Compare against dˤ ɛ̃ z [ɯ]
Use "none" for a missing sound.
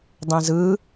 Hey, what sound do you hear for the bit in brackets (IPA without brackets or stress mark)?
ɯ